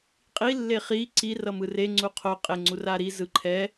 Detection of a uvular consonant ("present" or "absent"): present